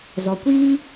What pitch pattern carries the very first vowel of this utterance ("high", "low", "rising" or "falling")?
low